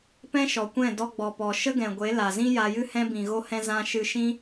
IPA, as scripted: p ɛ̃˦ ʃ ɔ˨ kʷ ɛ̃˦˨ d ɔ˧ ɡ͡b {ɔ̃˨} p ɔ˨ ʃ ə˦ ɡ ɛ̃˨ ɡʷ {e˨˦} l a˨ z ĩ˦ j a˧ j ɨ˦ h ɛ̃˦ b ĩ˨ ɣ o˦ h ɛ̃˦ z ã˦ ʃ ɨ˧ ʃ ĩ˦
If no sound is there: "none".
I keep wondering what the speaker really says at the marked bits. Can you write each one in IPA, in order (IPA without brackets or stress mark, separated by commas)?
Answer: ɔ˨, e˨˦